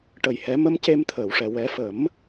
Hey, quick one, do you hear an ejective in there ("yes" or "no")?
no